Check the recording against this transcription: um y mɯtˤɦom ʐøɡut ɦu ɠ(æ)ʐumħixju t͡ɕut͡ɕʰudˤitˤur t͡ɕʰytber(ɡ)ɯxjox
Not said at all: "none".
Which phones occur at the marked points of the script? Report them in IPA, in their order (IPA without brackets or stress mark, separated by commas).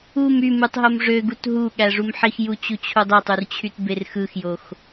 æ, x